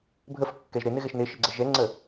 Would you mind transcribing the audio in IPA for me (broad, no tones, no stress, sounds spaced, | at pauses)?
bʱ ə f kː ɛ ʒ ɾ ɪ n ɪ ɣ ɛ ʃ n ɪ ʃ ɪ ɡ͡ǀ ə ʒ ɛ ŋ͡ǀ ə